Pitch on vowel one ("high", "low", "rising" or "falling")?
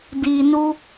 low